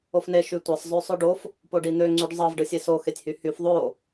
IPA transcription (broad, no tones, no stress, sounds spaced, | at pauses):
o f n e ʃ y tʷ ɑ sˤ zˤ ø sˤ ø ɖ o f | p o ɖ i n̪ ø ŋ͡ǀ y ɖ zˤ ɑ v ɖ ɯ sʲ e s o x e tʲ h y h y f ðˤ o